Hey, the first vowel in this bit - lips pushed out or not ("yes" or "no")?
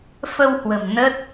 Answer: no